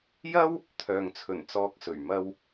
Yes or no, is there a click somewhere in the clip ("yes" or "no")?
no